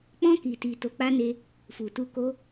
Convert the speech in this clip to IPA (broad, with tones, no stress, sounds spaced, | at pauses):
k͡p ɔ̃˧ k i˨ t i˨ t o˨˦ k͡p a˦ n e˧ | f u˨ t u˧ k o˦